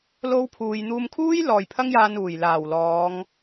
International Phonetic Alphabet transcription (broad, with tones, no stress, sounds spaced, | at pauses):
l o˥ w pʰ uː˧ j n̪ uː˧ m kʰ uː˥ j l ɔː˨ j pʰ ɐ˥ ŋ j aː˧ n uː˨˩ j l aː˨˩ w l ɔː˨˧ ŋ